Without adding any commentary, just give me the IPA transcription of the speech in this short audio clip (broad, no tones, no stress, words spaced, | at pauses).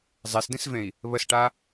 zˤesdĩsvẽi̯ | βəsʈa